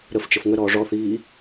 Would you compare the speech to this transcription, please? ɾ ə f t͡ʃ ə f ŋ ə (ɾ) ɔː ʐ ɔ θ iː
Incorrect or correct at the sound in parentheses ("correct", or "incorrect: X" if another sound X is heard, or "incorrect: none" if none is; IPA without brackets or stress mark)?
correct